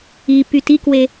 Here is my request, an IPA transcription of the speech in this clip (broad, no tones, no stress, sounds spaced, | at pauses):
i p y t i k w e